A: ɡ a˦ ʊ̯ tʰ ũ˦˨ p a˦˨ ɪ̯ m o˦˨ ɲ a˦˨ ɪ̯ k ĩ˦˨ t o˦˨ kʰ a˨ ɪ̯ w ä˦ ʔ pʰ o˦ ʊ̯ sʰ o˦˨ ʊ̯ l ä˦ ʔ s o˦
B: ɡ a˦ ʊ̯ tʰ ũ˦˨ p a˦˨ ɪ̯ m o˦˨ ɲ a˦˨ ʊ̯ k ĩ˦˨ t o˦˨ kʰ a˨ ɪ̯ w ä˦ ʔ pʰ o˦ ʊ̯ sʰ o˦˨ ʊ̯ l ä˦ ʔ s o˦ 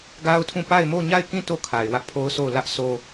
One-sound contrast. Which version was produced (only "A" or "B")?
A